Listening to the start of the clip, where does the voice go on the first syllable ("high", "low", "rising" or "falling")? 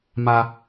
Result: high